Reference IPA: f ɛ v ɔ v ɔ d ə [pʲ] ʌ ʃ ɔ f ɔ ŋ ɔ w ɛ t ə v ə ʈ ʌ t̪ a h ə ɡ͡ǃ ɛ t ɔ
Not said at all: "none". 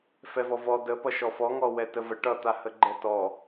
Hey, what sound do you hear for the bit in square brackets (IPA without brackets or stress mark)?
p